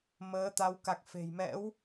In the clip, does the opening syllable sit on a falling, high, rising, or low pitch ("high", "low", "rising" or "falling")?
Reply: rising